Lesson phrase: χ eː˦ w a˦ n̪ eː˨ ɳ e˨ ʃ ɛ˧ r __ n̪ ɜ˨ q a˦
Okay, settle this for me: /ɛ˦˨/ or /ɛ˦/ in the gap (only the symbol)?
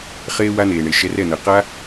ɛ˦˨